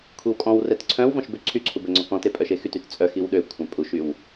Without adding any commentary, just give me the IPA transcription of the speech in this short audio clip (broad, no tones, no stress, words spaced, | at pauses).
kʷʰiwkʼɔ̃wrɛt ǀʰœ̃w vɔ̃ʃbøǀʰyǀʰu bɛŋ͡ǀɔkɔ̃te pʼœʃexytyt t͡sʼœ xiwɗøkʷʰœ̃ pʼuʃyw